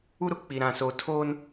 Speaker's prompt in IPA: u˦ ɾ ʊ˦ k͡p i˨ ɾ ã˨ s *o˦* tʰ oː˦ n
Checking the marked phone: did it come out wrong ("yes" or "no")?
yes